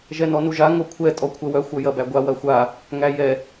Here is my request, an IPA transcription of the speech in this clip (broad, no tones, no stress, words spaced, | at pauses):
ʒɛnɔnuʒa ŋokʷʰɛ tʼɔkʷʰɛwœ xʷœjɐbæɡʷa wɐxʷa | ŋæjɛ